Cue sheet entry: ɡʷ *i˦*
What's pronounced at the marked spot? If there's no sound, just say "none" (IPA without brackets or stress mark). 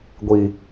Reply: i˨